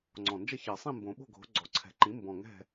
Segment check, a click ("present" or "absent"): present